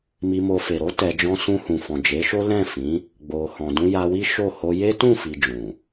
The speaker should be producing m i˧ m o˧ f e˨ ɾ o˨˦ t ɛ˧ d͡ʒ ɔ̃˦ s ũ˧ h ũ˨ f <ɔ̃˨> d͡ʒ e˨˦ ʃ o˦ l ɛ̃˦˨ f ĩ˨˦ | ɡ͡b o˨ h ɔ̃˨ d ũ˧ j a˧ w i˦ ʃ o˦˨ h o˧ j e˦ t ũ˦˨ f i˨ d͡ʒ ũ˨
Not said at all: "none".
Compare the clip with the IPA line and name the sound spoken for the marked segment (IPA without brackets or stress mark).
ɔ̃˨